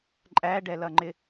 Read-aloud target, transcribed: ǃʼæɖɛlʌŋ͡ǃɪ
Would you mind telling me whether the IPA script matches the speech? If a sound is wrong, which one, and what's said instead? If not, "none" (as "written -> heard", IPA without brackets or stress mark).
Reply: none